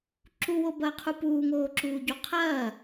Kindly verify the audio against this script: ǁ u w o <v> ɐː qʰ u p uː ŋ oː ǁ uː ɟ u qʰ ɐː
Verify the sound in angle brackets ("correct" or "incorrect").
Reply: incorrect